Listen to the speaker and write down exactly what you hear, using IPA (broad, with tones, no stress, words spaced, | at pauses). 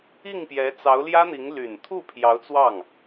i˥˩ŋpjɛ˧˥t͡sɑ˧˥ʊ̯ ljä˥n̪i˧˥ŋ ly˨˩nt̪ʰu˥˩ pʰjɑ˧˥ʊ̯t͡swɑ˥˩ŋ